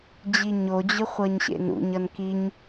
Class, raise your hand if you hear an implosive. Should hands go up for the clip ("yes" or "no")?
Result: no